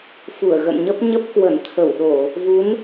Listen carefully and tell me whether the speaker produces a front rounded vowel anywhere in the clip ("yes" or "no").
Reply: no